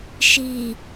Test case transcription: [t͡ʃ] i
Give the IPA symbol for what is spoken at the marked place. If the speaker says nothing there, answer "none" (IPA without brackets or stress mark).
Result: ʃ